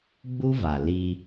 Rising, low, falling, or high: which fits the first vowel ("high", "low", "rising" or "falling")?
high